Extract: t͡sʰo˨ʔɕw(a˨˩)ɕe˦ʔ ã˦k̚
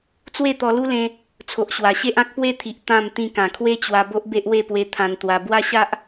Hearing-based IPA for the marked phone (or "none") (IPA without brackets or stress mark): a˨˩